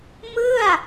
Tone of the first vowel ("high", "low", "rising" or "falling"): falling